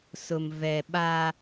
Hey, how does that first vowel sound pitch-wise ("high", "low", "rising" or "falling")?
low